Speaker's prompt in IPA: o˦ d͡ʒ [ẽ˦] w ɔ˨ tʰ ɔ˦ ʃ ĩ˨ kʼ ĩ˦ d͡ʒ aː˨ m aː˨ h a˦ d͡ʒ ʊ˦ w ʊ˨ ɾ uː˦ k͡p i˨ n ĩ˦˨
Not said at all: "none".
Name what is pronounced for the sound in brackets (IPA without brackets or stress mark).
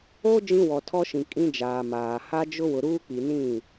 ĩ˦